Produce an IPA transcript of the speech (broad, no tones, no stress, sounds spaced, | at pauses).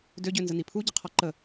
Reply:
d ø ɟ ø n z ə n i pʰ u ɟ ə qʰ ɔ ǃ ə